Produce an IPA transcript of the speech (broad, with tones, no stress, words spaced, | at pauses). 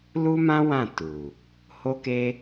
lu˦mã˦ wã˦˨tu˨ | ho˦ke˦